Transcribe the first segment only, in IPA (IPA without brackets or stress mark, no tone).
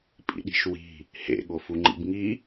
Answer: pʼ